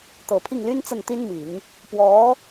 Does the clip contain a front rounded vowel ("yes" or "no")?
yes